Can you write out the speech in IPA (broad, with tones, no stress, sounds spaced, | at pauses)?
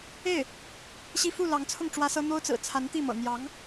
e˥˩ ɪ̯ | ɕ i˥˧ f u˥˩ l ɑ˧˥ ŋ t͡sʰ ʊ˥˩ ŋ ʈ͡ʂ w ä˥ s ɤ˥ n̪ o˥ ʊ̯ t͡s ɹ̩˨˩ t͡sʰ a˧˥ n t̪ i˥˩ m ɤ̰˨˩ n̪ j ɑ˧˥ ŋ